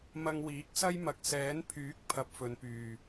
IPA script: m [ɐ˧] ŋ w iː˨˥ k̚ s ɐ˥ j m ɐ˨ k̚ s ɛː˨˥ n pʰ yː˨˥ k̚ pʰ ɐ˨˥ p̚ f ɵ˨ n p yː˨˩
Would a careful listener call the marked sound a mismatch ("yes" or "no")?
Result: no